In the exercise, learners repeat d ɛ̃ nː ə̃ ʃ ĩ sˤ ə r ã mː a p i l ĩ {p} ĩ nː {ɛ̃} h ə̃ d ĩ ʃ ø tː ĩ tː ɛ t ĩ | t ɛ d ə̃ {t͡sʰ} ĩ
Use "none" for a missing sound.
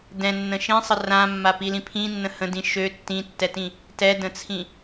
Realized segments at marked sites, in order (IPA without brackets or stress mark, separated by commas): pʰ, ə̃, t͡sʰ